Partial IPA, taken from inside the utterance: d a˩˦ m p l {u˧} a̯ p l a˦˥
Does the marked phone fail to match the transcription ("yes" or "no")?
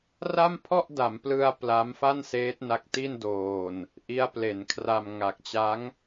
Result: yes